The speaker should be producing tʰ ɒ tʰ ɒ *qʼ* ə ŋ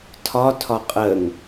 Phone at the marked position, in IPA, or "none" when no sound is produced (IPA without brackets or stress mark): qʼ